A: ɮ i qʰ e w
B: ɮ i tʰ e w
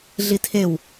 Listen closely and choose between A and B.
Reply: B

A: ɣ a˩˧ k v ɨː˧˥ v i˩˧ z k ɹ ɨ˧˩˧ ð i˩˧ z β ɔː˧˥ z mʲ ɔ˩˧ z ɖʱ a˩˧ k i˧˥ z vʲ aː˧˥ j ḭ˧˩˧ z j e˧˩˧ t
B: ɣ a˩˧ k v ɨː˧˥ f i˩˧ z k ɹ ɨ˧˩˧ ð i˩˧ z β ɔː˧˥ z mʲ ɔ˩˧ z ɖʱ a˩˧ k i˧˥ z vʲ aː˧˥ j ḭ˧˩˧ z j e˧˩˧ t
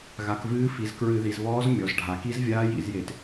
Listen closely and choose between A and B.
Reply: B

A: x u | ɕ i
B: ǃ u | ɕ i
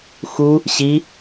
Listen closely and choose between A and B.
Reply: A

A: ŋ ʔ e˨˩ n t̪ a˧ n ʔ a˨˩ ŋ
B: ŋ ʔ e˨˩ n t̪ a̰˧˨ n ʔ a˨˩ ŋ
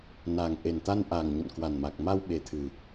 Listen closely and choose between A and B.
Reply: A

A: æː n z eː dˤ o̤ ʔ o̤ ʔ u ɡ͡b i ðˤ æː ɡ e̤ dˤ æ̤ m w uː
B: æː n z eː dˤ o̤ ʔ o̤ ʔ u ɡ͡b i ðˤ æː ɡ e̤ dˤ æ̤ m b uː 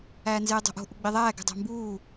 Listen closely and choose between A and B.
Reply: B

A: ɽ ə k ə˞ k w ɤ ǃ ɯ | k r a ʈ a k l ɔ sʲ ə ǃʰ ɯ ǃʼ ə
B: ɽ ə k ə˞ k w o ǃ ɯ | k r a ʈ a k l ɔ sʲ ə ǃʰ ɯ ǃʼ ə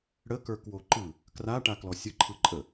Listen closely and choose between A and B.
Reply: B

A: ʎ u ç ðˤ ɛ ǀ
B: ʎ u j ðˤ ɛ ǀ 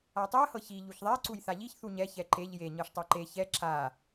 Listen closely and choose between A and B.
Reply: A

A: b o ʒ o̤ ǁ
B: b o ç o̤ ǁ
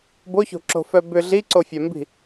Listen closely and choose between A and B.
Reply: B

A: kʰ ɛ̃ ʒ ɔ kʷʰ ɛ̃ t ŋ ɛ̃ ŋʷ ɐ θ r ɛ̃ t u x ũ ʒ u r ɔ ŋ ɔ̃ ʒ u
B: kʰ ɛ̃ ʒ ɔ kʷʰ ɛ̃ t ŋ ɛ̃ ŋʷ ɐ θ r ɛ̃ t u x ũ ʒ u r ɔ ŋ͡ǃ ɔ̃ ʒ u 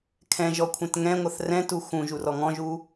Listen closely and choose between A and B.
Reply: A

